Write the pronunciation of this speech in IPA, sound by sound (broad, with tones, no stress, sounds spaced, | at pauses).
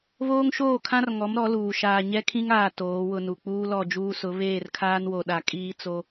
β oː˦ ŋ ʃ oː˦˨ kʰ ã˦ r ŋ ɔ˨˦ m ɾ ɔ˨˦ l uː˨ ʃ aː˨ ɲ ɛ˦ kʰ ĩ˦ ŋ aː˨ t oː˨˦ w ʊ˦ n u˨ k͡p uː˦ l ɔ˦˨ d͡ʒ uː˦ s ʊ˨˦ β eː˦˨ r kʰ aː˦ n w o˨ ɗ a˨ kʼ iː˦ t͡s o˦